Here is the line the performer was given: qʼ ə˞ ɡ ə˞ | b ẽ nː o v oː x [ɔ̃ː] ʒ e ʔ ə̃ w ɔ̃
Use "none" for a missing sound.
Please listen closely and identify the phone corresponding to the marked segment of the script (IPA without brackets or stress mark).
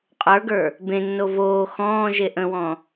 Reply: ɔ̃ː